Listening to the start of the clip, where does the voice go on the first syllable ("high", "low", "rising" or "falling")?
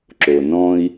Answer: low